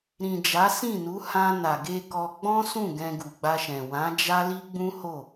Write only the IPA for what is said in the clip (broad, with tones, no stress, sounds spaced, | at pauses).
ɾ ĩ˨ d͡ʒ a˨˦ s ĩ˦˨ n u˨˦ h ã˧ n a˨ ɡ e˧ k ɔ˧ ɡ͡b ɔ̃˦ s ũ˦˨ ɡ ɛ̃˧ ɡ u˨ ɡ͡b a˧ ʃ ɛ̃˨ w ã˨˦ d͡ʒ a˦ l i˦ ɡ͡b ũ˦ h o˦˨